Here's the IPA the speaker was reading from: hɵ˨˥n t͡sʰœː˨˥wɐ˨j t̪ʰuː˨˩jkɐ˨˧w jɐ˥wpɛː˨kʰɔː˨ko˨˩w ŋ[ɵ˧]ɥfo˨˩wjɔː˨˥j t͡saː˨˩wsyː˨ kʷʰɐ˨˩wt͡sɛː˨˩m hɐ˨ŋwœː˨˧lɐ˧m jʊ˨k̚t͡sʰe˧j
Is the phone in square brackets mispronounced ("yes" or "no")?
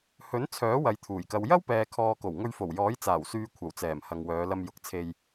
no